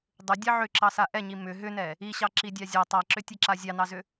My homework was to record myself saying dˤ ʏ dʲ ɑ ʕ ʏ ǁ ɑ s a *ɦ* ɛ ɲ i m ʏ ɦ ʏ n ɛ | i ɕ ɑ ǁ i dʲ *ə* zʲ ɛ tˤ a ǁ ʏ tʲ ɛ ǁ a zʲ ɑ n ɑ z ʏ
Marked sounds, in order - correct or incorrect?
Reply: incorrect: ʔ, incorrect: ɑ

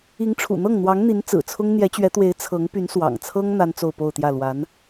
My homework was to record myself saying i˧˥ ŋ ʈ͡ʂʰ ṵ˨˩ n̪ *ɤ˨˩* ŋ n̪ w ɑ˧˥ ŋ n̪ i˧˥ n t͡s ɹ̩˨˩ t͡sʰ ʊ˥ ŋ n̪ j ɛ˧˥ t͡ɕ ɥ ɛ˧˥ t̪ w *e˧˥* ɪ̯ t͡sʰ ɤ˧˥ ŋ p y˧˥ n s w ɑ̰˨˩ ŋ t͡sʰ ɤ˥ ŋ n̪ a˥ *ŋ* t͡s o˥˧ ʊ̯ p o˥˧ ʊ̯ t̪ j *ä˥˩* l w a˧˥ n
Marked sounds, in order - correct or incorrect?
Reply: incorrect: ɤ˥˩, correct, incorrect: n, correct

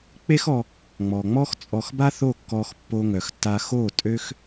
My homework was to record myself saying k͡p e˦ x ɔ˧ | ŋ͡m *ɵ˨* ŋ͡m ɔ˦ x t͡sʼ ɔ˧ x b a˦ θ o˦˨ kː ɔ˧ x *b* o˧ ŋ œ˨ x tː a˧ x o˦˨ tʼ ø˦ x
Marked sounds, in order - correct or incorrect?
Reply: incorrect: ɔ˨, incorrect: pː

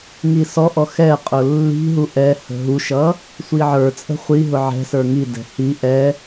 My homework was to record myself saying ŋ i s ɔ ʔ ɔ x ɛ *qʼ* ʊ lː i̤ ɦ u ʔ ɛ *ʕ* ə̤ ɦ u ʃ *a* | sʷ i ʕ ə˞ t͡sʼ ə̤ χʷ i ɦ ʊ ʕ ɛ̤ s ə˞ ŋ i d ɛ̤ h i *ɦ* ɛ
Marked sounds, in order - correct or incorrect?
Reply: correct, incorrect: h, incorrect: ʌ, incorrect: ʔ

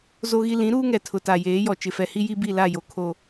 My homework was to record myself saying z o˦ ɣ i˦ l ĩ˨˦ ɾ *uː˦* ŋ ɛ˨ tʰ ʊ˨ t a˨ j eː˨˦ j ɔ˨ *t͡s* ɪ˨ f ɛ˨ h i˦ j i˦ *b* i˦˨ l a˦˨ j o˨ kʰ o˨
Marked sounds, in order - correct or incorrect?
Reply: correct, incorrect: t͡ʃ, correct

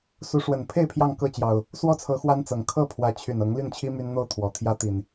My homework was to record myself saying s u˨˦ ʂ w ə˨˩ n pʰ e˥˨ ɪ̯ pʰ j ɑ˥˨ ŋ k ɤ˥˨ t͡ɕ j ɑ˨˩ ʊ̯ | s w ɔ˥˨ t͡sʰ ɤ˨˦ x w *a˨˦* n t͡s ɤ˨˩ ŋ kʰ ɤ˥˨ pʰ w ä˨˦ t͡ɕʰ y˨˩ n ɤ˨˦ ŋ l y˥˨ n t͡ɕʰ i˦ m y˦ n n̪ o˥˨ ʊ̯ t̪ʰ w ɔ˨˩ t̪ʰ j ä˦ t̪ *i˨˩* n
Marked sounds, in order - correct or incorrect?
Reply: incorrect: a˦, correct

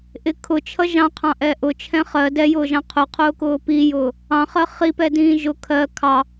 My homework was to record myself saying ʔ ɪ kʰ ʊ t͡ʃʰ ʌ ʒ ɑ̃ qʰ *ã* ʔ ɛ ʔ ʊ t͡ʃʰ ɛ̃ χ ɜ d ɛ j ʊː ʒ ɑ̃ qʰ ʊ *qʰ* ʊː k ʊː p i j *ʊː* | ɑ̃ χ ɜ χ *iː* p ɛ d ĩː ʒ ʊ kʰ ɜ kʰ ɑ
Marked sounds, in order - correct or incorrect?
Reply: incorrect: ɑ̃, correct, correct, incorrect: i

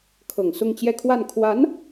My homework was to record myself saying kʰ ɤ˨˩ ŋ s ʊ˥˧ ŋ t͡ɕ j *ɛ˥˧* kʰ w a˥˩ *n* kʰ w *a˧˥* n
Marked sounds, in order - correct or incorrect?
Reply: correct, correct, correct

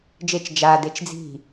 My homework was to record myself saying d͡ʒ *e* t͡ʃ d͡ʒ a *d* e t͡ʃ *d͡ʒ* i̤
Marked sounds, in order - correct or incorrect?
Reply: correct, correct, incorrect: d͡z

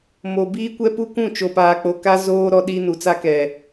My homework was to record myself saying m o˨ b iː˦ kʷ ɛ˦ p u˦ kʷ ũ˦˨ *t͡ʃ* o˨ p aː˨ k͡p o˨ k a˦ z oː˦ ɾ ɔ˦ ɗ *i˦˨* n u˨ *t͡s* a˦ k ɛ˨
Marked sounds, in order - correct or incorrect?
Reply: correct, incorrect: i˦, correct

